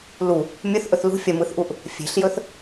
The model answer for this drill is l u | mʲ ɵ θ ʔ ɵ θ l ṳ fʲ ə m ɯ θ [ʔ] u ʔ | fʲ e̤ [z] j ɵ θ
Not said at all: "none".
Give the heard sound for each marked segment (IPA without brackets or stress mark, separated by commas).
ʔ, ɬ